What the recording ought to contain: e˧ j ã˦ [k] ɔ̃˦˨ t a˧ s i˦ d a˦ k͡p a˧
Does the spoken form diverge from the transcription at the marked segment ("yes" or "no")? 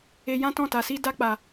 yes